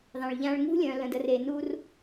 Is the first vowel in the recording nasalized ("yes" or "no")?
yes